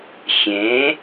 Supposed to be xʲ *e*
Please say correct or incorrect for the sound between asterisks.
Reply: incorrect: ẽ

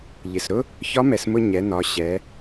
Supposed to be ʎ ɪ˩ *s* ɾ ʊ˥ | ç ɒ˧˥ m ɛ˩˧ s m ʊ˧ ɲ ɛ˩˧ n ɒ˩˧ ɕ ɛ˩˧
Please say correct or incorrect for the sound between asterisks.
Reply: correct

